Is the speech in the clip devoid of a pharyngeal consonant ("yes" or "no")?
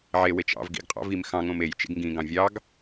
no